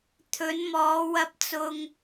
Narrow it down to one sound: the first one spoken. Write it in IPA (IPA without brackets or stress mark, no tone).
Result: t̪ʰ